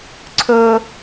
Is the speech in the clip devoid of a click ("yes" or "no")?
no